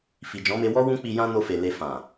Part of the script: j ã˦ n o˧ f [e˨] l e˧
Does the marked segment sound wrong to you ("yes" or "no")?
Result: no